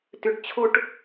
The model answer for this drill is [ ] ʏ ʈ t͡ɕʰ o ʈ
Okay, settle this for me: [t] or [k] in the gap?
t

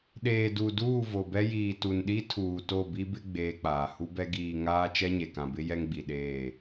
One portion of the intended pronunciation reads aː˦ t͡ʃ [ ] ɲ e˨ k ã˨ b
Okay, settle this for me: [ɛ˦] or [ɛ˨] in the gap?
ɛ˦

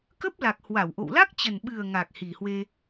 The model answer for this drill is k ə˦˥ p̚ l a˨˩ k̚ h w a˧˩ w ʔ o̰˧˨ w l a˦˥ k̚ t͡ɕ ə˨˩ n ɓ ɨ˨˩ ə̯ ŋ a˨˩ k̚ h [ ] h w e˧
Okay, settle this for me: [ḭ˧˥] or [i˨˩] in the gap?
i˨˩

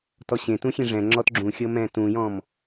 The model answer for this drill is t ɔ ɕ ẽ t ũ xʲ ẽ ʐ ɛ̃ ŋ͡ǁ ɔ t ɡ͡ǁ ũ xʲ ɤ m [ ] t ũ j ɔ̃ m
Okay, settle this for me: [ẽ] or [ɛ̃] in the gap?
ɛ̃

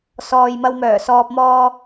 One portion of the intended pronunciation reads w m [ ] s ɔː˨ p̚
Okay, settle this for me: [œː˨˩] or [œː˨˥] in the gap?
œː˨˩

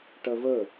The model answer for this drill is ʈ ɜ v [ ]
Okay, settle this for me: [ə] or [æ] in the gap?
ə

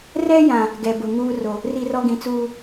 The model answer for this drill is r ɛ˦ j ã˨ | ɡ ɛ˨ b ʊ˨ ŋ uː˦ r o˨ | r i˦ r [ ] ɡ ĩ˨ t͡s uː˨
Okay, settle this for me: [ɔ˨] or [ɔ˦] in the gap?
ɔ˦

